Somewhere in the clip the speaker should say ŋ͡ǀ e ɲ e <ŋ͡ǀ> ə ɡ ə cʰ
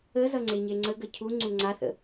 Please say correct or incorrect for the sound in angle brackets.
correct